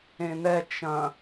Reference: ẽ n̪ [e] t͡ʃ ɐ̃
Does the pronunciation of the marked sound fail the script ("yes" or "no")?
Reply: yes